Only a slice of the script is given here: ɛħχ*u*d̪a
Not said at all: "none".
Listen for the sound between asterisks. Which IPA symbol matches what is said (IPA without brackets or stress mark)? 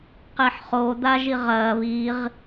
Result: o